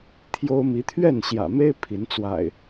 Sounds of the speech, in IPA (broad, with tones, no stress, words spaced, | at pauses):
t̪ʰjo˦ʊ̯ mi˨˦t̪ʰɥɛ˥˨nɕjä̰˨˩me˦ɪ̯ pʰi˨˦nt͡swa̰˨˩ɪ̯